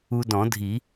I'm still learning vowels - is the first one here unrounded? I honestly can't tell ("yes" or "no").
no